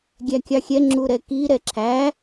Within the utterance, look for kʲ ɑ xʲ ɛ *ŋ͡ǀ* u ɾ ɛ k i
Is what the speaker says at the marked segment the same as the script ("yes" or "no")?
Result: no